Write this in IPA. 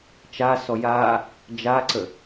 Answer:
t͡ʃ a s ɔ j a | d͡ʒ a ǀ ə

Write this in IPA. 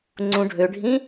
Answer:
ŋ͡ǀ ũ ɖʱ ø ɖʱ ĩ

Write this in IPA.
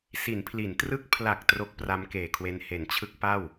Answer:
s i˩˦ n pʰ l i˩˦ n t r ɯ˦˥ k̚ pʰ l a˨˩ k̚ t r o˦˥ k̚ p r a˦˥ m k eː˨˩ kʰ w e˧ n h e˩˦ n t͡ɕʰ ɯ˦˥ k̚ p a˥˩ w

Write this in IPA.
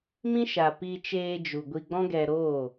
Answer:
m ĩ˦ ʃ a˨ p i˧ t͡ʃ eː˧ d͡ʒ u˨ ɡʷ i˧ ɡ͡b ɔ̃˦ ɡ ɛ˧ ɾ oː˦˨

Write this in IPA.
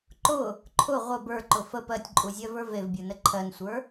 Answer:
ǃ ʊ | ǃʰ ʊ ʁʷ ə b ə˞ ǃ ʊ f ə p ɜ tʲ ǃʼ u zʲ ɜ v ə˞ v e v bʲ ə˞ n ə ǃʰ ɜ n sʷ ə˞

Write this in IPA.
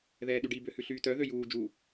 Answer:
ð ɛː ɗ y ɖ i b ø h ʉ ɬ yː t œ ð ø j uː d͡ʒ u

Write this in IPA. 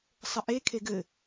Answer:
sˤ ə ʔ e kʰ e ɡ ɘ

